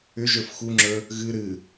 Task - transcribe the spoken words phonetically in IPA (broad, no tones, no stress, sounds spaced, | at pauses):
ʏ ʒ ə˞ f x u ŋ͡ǁ ə˞ | ɣ ɨ ɾ ɨ